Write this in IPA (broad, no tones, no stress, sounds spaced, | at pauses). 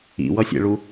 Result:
ḭ w ʌ sʲ ḛ ɭ u